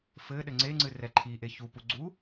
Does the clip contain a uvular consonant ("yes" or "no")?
no